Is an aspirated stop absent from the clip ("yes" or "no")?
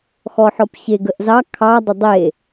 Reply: no